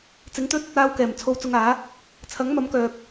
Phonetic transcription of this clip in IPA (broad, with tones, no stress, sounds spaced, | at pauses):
t͡s ɪ˨˥ ŋ t̪ ɵ˥ t̚ | aː˧ w k ɛː˨˩ m t͡sʰ o˧ w t͡s ʊ˧ ŋ aː˨˥ | t͡sʰ ɐ˨˥ ŋ m ɐ˨˥ m k œː˨ k̚